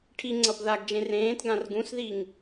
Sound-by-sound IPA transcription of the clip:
ʈʰ i ŋ͡ǀ ʌ b ð a ɡ d͡ʒ ẽ r ẽː t ɡ ã r ɡ ũ s ð i ŋ

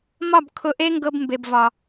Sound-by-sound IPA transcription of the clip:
m ɒ˦˨ b kʰ ʊ˧ ʔ e˦ ŋ ɡ ɤ˧ b m b e˨ b v ɒ˨

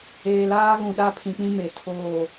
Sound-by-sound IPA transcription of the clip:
eː˨ l aː˦ ɣ ũ˨ ɗ a˦ pʰ ĩ˨ k͡p ĩ˦ m e˨ tʰ oː˦˨

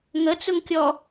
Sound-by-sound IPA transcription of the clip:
ŋ ə t͡s ʊ ŋ kʲ ɔ

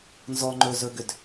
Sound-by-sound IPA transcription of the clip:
n z ɔ ŋ͡ǃ ɵ z ɵ ɡ ʏ d

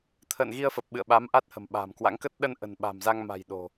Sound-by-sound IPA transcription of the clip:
t̪ʰ ə̰ː˧˨ n ɣ i˧ ə̯ f ə˨˩ p̚ ɓ ɨ̰˧˨ ə̯ ɓ a˨˦ m ʔ a˦˥ t̚ h ə̤˨˩ m ɓ a̤ː˨˩ m k w a̰˧˥ ŋ k ə˦˥ t̚ ɗ ə˧ n ʔ ə̤˨˩ n ɓ a̤˨˩ m z a˧ ŋ m a̤˨˩ j ɗ o̤˨˩

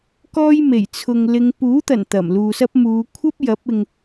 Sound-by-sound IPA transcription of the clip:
k ɔː˥ j m e˨˩ j t͡sʰ ʊ˨ ŋ l ɪ˥ ŋ p uː˨˥ t̪ ɐ˨˩ n t̪ ɐ˨˩ m l uː˨ s ɐ˥ p̚ m uː˨˧ kʷʰ ɐ˥ p̚ j ɐ˨˥ p̚ ɪ˨ ŋ

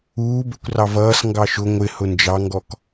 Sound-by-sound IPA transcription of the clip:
uː b ɛ kʷ r ɑ v ʌː s ŋ ɡ ɑ ʃ ʊ ŋʷ ɪ h ʊ n d͡ʒ ɑ ŋ ɡ ɔ k

